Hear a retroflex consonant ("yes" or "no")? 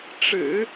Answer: yes